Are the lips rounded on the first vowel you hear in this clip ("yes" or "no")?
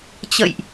no